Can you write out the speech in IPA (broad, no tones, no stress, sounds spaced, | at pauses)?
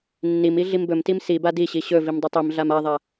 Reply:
nː i m i ɮ i m b ɵ m t i m s i b a d i ɕ i ɕ ɵ v i m dˤ ɵ tˤ i m ɮ a m a ðˤ a